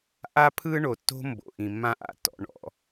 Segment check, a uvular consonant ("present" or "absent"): absent